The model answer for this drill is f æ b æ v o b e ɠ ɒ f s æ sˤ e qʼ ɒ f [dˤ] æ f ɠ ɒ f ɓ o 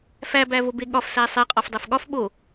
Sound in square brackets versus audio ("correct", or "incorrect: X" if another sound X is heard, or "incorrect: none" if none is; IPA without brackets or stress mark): correct